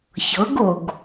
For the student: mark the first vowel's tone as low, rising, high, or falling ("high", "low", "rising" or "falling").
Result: rising